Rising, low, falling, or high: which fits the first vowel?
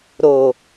low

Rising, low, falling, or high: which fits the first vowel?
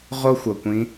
high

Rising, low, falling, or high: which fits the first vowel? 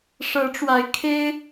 rising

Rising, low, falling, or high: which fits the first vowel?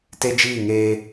high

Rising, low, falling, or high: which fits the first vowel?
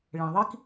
low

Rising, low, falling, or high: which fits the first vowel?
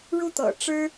falling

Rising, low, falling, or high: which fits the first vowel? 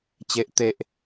low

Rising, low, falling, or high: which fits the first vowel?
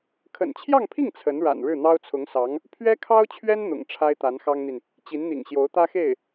low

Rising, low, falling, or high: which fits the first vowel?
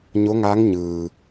rising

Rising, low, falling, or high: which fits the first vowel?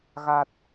low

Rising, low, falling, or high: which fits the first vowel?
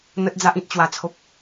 low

